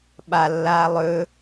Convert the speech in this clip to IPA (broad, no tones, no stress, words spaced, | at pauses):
ɓalːaː lˠɵ